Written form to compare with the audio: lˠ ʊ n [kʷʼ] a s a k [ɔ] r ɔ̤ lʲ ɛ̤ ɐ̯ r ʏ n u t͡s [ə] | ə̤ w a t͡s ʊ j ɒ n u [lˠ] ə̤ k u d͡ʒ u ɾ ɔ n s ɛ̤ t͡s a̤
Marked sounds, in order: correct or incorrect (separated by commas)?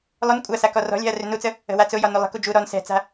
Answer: correct, correct, correct, correct